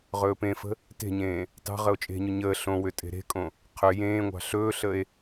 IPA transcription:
ʁɵːpẽfə̤ | te̤ɲẽː | tɑ̤ ʁəo̯t͡ʃʼe̤ɲʏ ɲəː ɬõwʏ tʼe̤ɾe̤kʼõ | qʰʏ jẽːŋʷɑ̤ ɬɵːɬəe̯

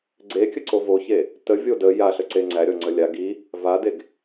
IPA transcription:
ɡ͡ǀekʲəǀo voçe | tə vʲodə jaɬə ǀeŋ͡ǀæɾʲɔ ŋ͡ǀəlʲa ɡi | vadeɡ

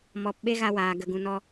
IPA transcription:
mɔ˨˦p ɓe˦ɣa˧waː˨ ɡə˨ ɡũ˨nɔ˧

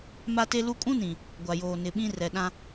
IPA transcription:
ma˦te˦lu˦ kʼũ˦nĩ˨ | ɡʷa˨joː˨ nɪ˨ɓĩ˦ rɛ˨ɗã˦

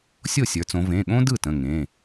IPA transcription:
sʲo˥˩sʲə˞˩˧t͡sõ˩˧ vẽ˩˧˩ɠõ˥dɯ˥˩ tə̃˩˧˩ŋẽ˩˧˩

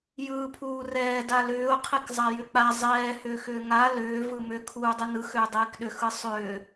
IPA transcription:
jɯːpʰuːrɛː dalʏːʊ̯ qʰikzˤajʏk͡pa zˤɛː hʏːxʏːŋa lʏː vɯmʏ kʰuːdˤɯnɯ xʏːdˤiːkɗʏ xɯsˤʏː

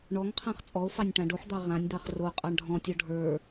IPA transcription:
ɳɔŋqʰãχ t͡sʼɔo̯fɑnʲ ʈãɖoħd̪ɑ ʁãnʲd̪ɑχ ro qʼɑɳɖʱɔ̃tʲɔ ɖʱə˞

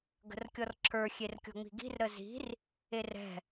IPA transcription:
ɡə̤rkʲɔrǁʰə˞ xʲerkʲɔ̤ŋ͡mi̤ɡi̤r ɾəzi̤r | erɛ̤

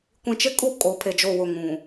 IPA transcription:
kʷĩ˨t͡ʃɪ˦kʼu˦˨ kʼo˨˦pʰe˨d͡ʒo˦˨wʊ˦˨ ŋũ˨

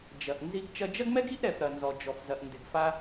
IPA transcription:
d͡ʒɐ˩ʔ nzi˧ɡ t͡ʃɐ˧d͡ʒɐ˥ɡmɛ˥ɡ i˥ʔɾɛ˩f ɾɐ˩nzɔ˩d͡ʒɔ˩fzɐ˩ʔ ndɪ˩ɡfa˧

